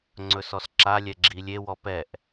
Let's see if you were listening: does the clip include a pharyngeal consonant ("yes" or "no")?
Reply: no